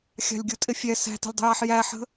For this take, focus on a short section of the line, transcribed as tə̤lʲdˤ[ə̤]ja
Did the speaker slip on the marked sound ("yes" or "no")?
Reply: no